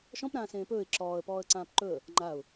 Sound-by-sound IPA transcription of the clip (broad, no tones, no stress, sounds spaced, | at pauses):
ʃ ɔ̃ p ɾ ãː s ẽː p ɵː ɪ̯ ǁ ɔː ə̯ p ɔː ə̯ ǀ ãː p ǃ ɵ ə̯ | ŋ͡ǃ a ʊ̯